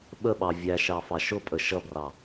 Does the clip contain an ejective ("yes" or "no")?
yes